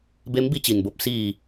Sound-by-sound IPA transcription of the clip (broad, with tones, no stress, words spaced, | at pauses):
be˧˥mbi˧ t͡ɕi˩nbo˧p̚ siː˧˩